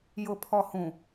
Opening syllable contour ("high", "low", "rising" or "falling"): low